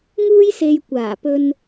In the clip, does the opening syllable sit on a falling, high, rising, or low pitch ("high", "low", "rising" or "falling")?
high